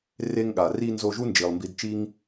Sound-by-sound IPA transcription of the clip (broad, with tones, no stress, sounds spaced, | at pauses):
r e˧ ŋ ɠ a˨ r i˧ n z o˧ ʒ u˦ n d͡ʒ i˨ lˠ m b i˧ d t͡ʃ i˧ ŋ